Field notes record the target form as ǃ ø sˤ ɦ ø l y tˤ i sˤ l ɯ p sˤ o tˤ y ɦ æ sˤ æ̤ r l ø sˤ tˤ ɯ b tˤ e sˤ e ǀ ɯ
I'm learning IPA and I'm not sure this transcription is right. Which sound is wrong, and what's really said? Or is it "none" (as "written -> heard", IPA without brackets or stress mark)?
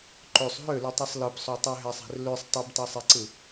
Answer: none